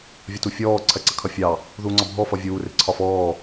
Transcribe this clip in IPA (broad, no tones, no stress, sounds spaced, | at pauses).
vʲ ɒ t u fʲ ɔː ǀʰ ɜ ǀ ə kʰ ʌ fʲ ɑ | ð uː ŋ͡ǀ ɒ bʱ ɔ f ʌ vʲ uː r ɪ ǀʰ ɒ f ɔː